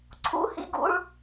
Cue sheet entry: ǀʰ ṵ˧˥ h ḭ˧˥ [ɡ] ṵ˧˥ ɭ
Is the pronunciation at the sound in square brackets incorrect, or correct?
correct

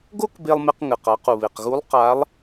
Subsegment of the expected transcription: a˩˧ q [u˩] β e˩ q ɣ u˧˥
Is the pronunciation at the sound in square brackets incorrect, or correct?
correct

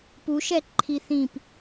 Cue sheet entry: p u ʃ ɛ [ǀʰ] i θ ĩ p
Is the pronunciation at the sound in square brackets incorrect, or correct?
incorrect: ǃʰ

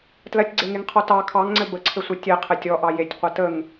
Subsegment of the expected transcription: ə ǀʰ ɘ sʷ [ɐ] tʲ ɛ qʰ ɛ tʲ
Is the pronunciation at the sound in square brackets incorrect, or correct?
correct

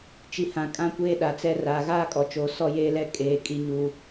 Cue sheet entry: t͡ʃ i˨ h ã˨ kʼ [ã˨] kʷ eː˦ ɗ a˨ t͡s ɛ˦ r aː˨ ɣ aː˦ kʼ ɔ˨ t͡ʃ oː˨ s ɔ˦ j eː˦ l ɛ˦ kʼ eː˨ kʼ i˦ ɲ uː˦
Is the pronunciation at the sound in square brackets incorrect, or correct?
incorrect: ã˦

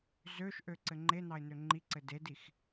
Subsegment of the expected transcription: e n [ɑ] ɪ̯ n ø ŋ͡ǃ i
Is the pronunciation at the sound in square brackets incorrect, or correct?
correct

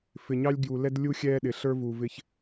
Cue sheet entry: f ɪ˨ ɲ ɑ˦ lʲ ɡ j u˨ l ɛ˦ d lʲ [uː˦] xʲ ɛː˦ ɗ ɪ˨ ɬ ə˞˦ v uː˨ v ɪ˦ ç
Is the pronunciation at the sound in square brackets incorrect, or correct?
incorrect: u˦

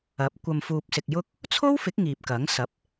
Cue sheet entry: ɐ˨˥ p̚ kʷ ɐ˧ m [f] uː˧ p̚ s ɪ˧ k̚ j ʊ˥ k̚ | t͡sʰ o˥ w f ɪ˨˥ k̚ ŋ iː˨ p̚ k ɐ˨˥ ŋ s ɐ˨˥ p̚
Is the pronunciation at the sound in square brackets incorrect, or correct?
correct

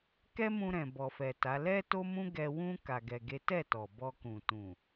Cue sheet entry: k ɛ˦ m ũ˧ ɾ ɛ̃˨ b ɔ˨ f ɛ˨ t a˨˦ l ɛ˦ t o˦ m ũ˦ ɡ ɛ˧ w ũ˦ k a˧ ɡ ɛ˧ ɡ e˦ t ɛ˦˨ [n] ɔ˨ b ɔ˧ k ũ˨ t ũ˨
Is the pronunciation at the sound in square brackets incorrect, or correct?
incorrect: t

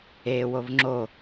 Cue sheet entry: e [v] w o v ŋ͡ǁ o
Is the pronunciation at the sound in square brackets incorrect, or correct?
incorrect: none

